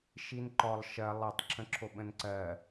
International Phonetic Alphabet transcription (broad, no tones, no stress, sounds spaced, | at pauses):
ʃ i n ǃ ɔ lˠ ʃ ɜ lˠ e tˤ ǁʰ ə̃ ǁʰ o ɓ ə̃ n ǀ ɜ